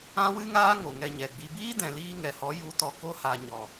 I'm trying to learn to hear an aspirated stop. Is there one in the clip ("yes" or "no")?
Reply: no